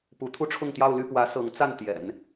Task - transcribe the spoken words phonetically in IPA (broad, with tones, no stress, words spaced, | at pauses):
pu˧˥t̪ʰu˥˧ʈ͡ʂʰʊ˥˧ŋt̪jɑ˥˧ʊ̯ ly˥˩pwä˧˥ sɤ˧˥ŋt͡sa˥˩n t̪jɛ̰˨˩˦n